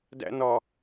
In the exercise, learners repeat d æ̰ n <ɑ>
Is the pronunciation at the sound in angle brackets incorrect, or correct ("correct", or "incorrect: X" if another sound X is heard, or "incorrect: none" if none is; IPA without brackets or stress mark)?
incorrect: ɒ